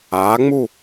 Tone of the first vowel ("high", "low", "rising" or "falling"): rising